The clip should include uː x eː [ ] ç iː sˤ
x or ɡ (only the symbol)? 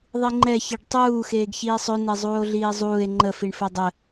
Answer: ɡ